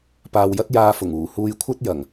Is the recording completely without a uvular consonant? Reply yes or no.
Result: yes